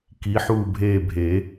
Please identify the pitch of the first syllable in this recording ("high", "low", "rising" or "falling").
rising